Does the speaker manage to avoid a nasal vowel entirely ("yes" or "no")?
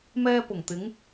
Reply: yes